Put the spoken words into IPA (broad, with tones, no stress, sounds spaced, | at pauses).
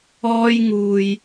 ɔː˥ j ŋ uː˧ j